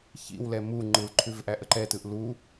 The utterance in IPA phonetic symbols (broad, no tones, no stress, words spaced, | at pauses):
çḭwlɛ mu ŋ͡ǃɯlǃʰʉv ʔæʔəǃɛtɯʔ lu